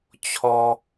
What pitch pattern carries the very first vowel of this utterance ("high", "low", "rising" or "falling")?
high